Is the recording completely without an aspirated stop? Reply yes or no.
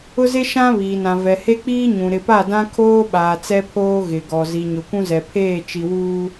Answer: no